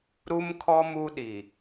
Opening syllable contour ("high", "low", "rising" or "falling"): high